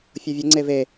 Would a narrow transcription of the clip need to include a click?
yes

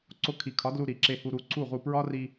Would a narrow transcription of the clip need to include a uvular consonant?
yes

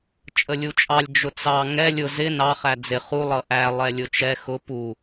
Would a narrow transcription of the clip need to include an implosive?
no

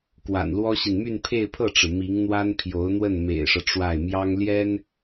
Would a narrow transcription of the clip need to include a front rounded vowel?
yes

